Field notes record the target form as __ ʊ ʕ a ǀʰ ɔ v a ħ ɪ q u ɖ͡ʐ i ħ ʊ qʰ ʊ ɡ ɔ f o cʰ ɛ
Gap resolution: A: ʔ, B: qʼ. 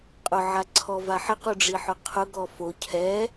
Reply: B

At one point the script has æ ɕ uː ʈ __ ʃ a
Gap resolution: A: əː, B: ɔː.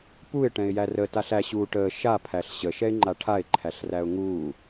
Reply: A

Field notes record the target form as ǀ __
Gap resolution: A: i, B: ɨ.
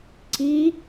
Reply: A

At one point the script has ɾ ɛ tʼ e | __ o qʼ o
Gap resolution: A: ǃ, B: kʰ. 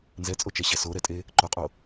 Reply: A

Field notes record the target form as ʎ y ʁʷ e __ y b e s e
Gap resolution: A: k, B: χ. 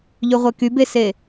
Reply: A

